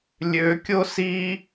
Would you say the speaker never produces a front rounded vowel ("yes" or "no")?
no